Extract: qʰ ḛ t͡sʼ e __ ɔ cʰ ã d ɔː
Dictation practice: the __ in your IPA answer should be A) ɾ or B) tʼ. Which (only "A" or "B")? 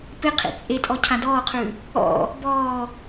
B